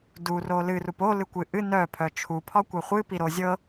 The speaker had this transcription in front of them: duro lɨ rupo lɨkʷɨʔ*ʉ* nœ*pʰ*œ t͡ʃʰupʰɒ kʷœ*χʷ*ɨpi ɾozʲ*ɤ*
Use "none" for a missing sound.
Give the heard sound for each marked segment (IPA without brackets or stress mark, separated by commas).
ɨ, pʰ, χʷ, ɤ